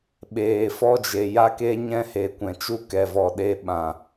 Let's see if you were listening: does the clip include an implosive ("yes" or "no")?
yes